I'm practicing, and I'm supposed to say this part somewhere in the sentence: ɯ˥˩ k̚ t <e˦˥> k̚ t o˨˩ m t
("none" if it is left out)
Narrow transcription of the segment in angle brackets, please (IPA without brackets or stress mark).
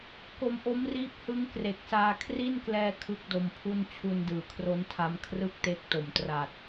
e˦˥